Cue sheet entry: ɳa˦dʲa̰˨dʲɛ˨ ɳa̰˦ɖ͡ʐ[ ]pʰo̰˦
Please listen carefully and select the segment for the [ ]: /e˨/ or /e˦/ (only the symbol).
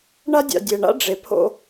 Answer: e˨